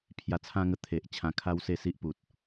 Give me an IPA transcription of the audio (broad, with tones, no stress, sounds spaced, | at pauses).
pʰ j a˧ t͡sʰ ã˦ ŋ ə˧ t̪ʰ e˨ ʔ t͡ɕʰ ã˧ kʰ a˦ w s e˥˧ s i˦ ʔ p u˨ t̚